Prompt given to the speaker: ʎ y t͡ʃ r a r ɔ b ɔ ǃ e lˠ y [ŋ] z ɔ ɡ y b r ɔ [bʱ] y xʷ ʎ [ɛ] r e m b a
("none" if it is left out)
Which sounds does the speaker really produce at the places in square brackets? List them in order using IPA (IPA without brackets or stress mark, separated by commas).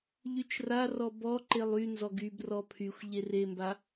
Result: n, pʰ, e